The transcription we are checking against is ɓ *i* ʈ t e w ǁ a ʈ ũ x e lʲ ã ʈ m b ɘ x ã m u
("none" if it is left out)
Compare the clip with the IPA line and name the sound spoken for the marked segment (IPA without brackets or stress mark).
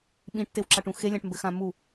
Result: ĩ